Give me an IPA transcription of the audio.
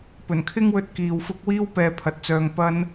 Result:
p ɵ˨˩ n kʰ ɪ˥ ŋ w ɵ˧ t̚ k iː˨ w f ʊ˥ k̚ w iː˥ w p ɛː˨˧ pʰ ɐ˨ t̚ t͡s œː˧ ŋ p ɐ˥ n

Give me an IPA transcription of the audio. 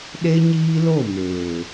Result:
ɗ e˦ ɲ iː˦ l o˦˨ m eː˨

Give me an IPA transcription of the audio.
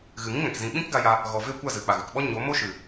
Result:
ɣ ɨ˨ ŋ ĩ˦ ŋ ɛ̃˨ k z ĩ˨ ɓ ĩ˦ k ɡ a˧ j a˧ | ɣ ɔ˨ v e˦˨ kʷ a˦˨ z ɨ˨ k͡p a˨ ɣ ɨ˨ k ɓ ɔ˦ ɲ o˨˦ m o˦ ʃ ɨ˨

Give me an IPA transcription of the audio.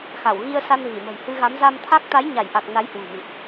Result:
x a˧˩ w ɣ i˧ ə̯ s a˧ n v i˧˩ m ə̤˨˩ j h ɨ˧ ɣ a˨˦ m z a˧ m t̪ʰ a˦˥ k̚ t̪ a˨˦ j ɲ a˧˩ j ʔ a˨˩ k̚ n a˨˦ j h w ṳ˨˩ m ḭ˧˨ ʔ

